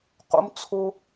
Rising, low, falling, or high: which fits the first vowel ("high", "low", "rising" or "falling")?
high